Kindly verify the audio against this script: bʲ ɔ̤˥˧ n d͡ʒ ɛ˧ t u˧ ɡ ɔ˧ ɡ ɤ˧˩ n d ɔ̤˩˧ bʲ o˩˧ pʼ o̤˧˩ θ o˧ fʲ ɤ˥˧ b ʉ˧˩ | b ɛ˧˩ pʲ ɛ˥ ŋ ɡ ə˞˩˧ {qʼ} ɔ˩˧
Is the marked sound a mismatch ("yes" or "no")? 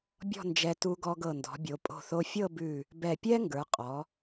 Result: no